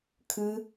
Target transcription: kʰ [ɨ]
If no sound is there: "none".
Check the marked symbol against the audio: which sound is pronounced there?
ɨ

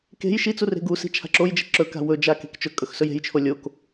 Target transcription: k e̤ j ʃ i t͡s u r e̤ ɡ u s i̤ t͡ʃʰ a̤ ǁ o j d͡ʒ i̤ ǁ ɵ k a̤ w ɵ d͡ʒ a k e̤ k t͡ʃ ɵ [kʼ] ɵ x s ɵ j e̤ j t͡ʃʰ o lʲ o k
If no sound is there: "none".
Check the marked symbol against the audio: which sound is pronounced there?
kʼ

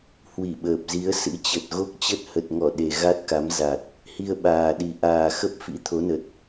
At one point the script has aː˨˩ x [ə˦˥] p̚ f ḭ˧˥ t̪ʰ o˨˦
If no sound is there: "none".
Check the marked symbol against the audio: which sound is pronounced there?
ə˦˥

